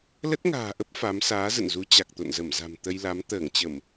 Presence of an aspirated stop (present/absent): absent